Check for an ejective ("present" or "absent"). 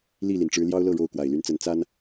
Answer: absent